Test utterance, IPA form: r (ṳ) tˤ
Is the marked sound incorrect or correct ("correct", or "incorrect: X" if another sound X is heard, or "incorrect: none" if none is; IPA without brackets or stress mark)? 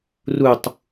incorrect: u